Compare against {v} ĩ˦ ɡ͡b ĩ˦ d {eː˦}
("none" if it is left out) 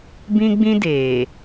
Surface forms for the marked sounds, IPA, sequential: b, eː˨

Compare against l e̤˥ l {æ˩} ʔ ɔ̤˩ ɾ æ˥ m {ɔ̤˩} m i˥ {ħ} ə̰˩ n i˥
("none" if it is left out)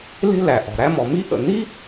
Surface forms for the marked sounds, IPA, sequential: æ˩, ɔ˩, ʔ

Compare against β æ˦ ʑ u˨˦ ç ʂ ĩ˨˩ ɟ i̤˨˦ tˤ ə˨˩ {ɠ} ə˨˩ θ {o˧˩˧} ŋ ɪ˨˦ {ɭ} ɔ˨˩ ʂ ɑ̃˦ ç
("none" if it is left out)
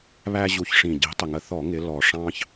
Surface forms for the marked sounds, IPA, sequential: ŋ, ɔ˧˩˧, l

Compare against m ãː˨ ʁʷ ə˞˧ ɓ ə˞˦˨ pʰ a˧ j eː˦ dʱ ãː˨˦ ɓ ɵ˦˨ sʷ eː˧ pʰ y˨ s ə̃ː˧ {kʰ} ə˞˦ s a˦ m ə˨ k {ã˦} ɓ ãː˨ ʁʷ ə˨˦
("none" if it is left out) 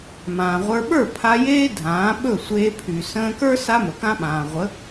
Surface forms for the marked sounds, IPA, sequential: k, ã˦

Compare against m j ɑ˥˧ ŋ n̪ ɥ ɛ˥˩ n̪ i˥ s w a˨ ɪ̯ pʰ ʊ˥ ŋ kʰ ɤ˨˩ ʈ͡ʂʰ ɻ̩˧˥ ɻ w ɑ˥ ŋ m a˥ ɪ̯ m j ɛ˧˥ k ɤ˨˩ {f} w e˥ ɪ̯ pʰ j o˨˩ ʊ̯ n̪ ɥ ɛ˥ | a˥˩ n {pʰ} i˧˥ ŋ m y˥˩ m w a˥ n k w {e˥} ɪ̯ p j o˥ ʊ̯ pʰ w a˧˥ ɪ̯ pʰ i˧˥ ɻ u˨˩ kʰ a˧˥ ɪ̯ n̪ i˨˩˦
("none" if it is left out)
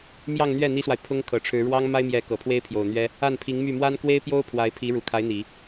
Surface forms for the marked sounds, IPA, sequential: pʰ, pʰ, e˥

